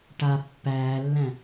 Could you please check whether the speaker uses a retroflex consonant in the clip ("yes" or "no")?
yes